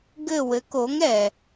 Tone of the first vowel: falling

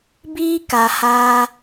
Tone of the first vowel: high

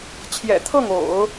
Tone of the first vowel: low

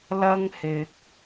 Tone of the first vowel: high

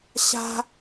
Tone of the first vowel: high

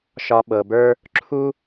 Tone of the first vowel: low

